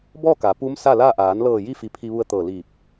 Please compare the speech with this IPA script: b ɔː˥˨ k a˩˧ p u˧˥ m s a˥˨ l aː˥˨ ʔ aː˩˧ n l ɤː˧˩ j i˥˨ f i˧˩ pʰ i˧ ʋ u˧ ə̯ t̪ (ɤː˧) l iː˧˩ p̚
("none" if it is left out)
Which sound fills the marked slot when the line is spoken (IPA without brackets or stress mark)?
ɤː˧˩